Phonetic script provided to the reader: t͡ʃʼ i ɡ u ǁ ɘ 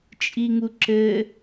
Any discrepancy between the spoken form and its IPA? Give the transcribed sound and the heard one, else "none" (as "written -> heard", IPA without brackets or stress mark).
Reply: ɡ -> ŋ